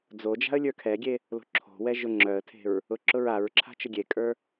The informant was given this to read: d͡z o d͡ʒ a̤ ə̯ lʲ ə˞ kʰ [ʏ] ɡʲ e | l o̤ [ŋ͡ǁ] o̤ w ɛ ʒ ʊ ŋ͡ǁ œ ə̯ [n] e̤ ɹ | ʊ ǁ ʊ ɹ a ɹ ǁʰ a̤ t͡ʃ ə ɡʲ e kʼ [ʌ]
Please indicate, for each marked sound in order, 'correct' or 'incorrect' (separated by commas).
incorrect, incorrect, incorrect, incorrect